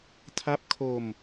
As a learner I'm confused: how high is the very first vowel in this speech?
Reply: low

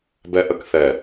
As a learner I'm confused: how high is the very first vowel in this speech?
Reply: mid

